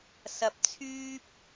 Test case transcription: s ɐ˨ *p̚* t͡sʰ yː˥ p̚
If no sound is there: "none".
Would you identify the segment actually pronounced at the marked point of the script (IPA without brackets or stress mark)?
p̚